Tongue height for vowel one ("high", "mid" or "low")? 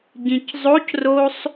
high